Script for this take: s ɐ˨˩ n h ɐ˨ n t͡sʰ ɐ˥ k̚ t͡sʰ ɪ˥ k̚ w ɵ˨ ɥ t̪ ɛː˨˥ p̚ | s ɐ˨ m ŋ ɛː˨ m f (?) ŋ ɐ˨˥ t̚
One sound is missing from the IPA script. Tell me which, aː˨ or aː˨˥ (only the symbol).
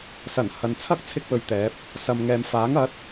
aː˨˥